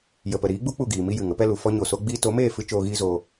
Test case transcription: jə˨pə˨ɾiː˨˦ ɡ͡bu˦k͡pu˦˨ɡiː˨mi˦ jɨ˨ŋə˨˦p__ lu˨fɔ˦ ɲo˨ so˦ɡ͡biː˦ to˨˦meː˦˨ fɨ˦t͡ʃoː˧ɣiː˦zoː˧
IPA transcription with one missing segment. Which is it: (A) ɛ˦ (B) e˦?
A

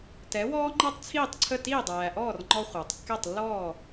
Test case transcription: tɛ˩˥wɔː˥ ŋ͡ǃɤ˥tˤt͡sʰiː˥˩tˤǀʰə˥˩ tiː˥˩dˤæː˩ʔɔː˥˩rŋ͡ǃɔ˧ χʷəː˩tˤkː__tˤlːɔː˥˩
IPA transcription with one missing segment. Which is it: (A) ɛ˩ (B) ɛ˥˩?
B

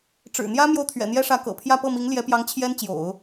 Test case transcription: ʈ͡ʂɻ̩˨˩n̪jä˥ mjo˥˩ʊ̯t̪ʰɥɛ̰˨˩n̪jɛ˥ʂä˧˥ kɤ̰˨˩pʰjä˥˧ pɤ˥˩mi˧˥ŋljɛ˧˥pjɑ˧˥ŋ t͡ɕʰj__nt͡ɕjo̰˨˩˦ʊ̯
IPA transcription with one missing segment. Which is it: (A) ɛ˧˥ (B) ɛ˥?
B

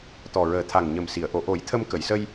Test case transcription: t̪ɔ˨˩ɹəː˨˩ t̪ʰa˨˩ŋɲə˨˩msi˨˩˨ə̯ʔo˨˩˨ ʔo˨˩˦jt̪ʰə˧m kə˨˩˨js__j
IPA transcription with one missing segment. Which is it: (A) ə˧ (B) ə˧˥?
A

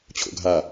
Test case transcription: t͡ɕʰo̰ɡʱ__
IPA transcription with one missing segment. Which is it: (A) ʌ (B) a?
B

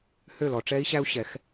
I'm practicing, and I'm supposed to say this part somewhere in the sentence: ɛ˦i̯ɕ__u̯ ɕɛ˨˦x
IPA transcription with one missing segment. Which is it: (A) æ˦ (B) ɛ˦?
A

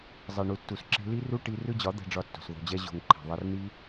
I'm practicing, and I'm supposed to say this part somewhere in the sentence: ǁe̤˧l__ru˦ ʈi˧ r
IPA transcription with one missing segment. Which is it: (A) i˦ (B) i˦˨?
A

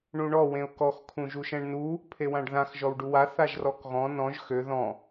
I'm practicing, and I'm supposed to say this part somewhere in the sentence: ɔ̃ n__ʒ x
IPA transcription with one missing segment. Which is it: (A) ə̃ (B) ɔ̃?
B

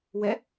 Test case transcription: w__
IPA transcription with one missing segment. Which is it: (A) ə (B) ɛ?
B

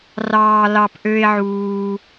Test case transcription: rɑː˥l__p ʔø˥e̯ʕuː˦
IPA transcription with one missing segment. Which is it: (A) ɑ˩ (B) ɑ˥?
B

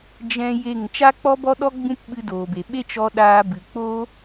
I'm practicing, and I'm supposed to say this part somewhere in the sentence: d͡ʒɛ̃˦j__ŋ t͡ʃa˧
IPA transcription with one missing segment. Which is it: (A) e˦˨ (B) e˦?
A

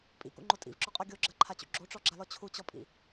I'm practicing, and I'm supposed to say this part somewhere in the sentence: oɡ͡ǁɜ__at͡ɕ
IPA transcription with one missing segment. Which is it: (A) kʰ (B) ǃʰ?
B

